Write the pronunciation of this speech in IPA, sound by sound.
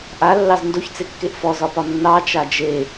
ʔ a lː ɑ z n d o ç t͡s e kː e ʔ f ɔ z ɒ p ɒ nː ɑ t͡ʃ a d͡ʒ e

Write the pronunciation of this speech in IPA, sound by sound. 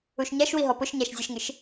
u ʃ ɲ a ʃ w i ɦ ɔ p ʊ ʃ ɲ a ʃ zʲ e ʃ ŋ ɪ ʃ

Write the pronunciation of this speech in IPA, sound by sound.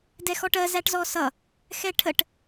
d ɛ x ɔ ʈ ɜ z æ ʈ z ɔ s ʌ | x ɛ ʈʰ ə ʈ

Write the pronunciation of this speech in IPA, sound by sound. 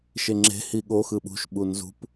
ʃ e ŋ͡ǁ e̤ h i ɠ o x ɯ ɓ ṳ ʃ ɓ u n z ṳ p

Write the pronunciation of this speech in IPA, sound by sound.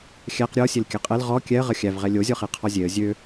xʲ æ q ɾʲ ɔ sʲ e l kʲ æ qʼ ɛ l ʁ ɔ kʲ ɛ ə̯ ʁ ə xʲ æ v ʁ ɛ lʲ o zʲ ɔ χ e qʰ ɔ zʲ e ə̯ zʲ ø

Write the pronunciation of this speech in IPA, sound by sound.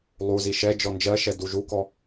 lˠ u z i ʃ ɛ d͡ʒ ɔ n d͡ʒ ɜ ʃ ɛ d u ʒ u k ɔ

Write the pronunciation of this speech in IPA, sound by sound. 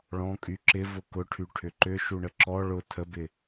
ɭ ɔ̃ kʼ y ǁ ɪ v ʊ k ʊ ʈʰ y ʈʰ ʏ ǃ ʏ ʃ u ɳ ə ǁ ɔ ɭ ʊ tʰ ə b ɪ

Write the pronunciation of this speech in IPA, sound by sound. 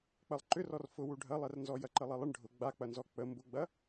k͡p ɐ lˠ ǃ ʏ r ɔ r f ʊ w u ɖʱ ɐ lˠ ɛ r n z ɔ j ɐ ǃ ə lˠ ɛ lˠ ə ɳ ɖʱ ʊ ɡ͡b a k͡p ɐ n z ɔ k͡p ə m b ʊ ɡ͡b ɐ

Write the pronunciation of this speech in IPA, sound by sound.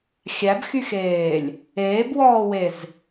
xʲ æ b x y x eː lʲ | eː b w ɔː w e z

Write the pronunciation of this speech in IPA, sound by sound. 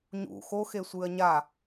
ɲ ṵ x o x e sʷ ɨː ɐ̯ ɲ a

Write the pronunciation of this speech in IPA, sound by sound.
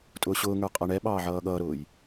tʼ ʊː ɕ ʊː ŋ ə˞ qʼ ʌ ɳ ɛ ɓ ɑː ʕ ʌː ɠ ʌː ɾ ʊː j

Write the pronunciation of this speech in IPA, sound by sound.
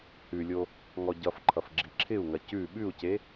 h ʉ lʲ o | ŋ ɔ ɟ ʌ f ǃʰ ʌ f ɡ͡ǁ i ǁʰ ɪ u̯ ŋ ɐ c ʉ ɓ ʉ u̯ c e

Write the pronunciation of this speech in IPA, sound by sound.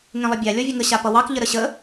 ŋ ẽ lˠ ə bʲ a lʲ ɔ vʲ ə ŋ ə ɕ a p ʌ w ɑ k ʎ ə ɾ ə ɕ ə

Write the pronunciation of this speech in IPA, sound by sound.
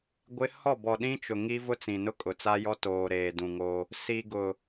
ɡʷ ɪ˦ h ɔ˦˨ b ɔ˨ ɗ ĩ˦ t͡ʃ ʊ˨ ŋ i˦ v ʊ˦ t͡s ĩ˨ n ʊ˦ kʼ ʊ˨ t͡s a˦ j ɔ˦ t oː˨ ɾ eː˨ d ũ˨ ŋ o˦ | s i˨ ɡ ʊ˨

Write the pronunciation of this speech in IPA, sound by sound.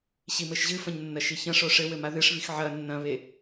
ɕ i m ɘ ʃ ʑ ɨ f ɐ̃ ɲ nː ɐ ʃ i ç ɐ̃ ʂ o ʂ ɘ w ɘ m a ð ɨ ʂ β i x ʕ ɐ nː ɐ̃ β e

